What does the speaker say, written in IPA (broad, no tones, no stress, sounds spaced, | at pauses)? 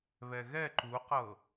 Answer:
β ɛ ɣ ɛ ǃ u q ɤ